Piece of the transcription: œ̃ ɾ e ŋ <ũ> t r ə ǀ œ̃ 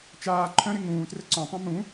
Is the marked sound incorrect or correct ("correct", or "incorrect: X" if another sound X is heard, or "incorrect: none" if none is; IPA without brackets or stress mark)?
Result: incorrect: ũː